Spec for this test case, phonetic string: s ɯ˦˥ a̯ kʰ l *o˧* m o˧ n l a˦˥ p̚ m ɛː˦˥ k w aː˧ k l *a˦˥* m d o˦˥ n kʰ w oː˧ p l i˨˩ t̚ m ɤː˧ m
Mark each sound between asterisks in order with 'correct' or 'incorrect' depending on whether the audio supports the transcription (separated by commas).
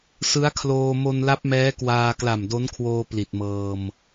incorrect, incorrect